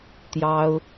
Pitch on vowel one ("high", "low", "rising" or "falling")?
high